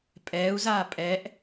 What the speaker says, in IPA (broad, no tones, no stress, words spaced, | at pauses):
pʼɛːu̯zaː pʼɛʔ